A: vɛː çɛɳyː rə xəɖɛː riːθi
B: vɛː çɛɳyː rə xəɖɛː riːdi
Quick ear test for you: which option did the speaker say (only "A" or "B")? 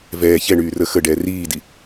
B